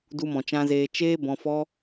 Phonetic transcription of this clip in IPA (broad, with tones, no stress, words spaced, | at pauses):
du˧mɔ̃˨t͡ʃã˧zeː˧ t͡ʃeː˦ bɔ̃˧fɔ˦